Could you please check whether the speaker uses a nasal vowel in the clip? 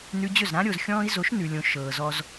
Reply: yes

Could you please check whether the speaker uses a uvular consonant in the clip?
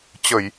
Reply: no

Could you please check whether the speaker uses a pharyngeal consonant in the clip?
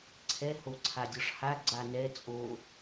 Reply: no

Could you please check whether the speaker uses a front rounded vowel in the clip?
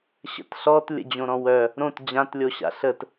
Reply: yes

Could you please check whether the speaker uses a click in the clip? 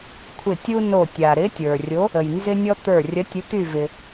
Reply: no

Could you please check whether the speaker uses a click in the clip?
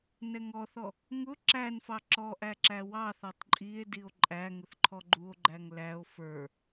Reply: yes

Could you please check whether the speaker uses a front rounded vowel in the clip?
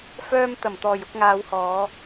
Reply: yes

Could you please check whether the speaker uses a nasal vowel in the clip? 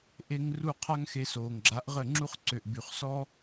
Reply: no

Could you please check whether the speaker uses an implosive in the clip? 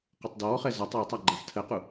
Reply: no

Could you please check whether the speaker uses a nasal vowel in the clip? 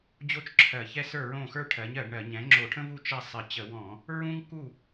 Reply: yes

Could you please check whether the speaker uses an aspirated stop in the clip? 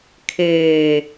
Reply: yes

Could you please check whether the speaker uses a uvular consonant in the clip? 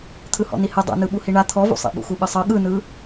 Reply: no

